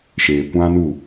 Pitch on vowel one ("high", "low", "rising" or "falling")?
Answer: low